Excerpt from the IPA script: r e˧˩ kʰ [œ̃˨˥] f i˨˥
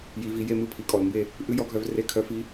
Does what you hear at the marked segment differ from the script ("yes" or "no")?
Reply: yes